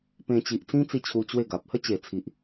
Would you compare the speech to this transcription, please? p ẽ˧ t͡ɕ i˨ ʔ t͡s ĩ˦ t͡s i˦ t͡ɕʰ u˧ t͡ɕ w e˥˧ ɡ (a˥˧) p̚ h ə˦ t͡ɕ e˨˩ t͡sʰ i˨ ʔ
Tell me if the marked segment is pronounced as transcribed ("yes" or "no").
no